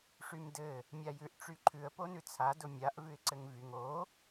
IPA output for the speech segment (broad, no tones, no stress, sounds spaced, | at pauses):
ʂ y m d ɘ | mʲ a j ʉ ʔ ʈ͡ʂ y ǃʰ ʉ ə̯ p o n ʉ t͡sʰ a d ʊ mʲ a ʔ v ʉ ɪ̯ ǀ ɘ ŋ v y ŋ o